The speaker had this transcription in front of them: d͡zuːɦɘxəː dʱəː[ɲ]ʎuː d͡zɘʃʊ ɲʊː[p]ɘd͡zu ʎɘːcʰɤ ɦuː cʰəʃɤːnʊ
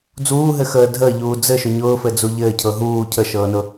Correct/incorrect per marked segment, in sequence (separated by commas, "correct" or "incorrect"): incorrect, incorrect